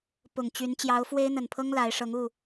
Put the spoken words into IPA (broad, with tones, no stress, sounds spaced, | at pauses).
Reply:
p ʊ˨˩ ŋ t͡ɕ y˨˦ n t͡ɕ j ɑ˨˦ ʊ̯ f w e˦ ɪ̯ n̪ ə˨˩ n pʰ ɤ˦ ŋ l a˨˦ ɪ̯ ʂ ɤ˨˦ ŋ u˥˨